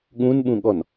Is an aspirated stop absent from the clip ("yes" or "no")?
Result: yes